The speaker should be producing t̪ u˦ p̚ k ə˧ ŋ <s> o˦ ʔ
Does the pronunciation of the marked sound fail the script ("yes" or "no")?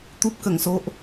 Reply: no